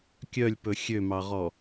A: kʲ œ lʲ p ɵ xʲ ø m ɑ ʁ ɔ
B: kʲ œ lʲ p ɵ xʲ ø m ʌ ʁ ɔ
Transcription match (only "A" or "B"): A